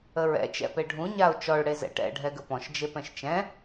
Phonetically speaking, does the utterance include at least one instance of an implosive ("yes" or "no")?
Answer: no